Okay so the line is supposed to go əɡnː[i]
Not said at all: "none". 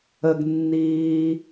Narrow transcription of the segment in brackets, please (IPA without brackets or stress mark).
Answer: iː